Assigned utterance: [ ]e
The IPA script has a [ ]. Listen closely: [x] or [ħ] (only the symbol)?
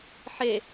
ħ